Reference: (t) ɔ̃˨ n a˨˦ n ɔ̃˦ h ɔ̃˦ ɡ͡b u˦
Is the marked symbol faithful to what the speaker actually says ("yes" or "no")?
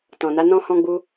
yes